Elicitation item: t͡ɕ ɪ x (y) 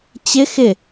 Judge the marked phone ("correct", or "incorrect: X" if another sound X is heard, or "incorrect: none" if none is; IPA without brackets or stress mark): incorrect: ɪ